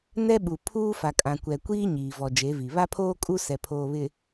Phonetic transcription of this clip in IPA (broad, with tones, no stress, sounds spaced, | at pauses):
n ɛ˦ ɓ u˨ pʰ uː˦ f a˨ kʼ ã˨ kʷ ɛ˨ kʷ iː˦ ɲ iː˨ v ɔ˨ d͡ʒ e˨˦ v i˨ β a˦ pʰ oː˦ kʼ u˦ s ɛ˨ pʰ oː˨ β ɪ˨